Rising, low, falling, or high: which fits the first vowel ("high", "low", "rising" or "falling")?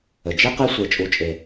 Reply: low